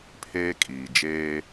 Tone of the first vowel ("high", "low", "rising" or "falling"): high